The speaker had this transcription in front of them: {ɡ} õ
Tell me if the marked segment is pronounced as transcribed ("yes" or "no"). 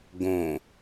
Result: yes